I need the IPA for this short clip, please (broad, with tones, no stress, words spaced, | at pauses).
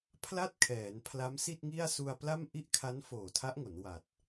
pʰla˥˩t̚kʰɛː˩˦n pʰla˦˥msi˥˩t̚ŋi˥˩a̯ su˧a̯pla˥˩m ʔi˥˩ʔkʰa˦˥n foː˨˩tʰa˦˥ʔŋo˩˦n wa˨˩t̚